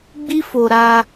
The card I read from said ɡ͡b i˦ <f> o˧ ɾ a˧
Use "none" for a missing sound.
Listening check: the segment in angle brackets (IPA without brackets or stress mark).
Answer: f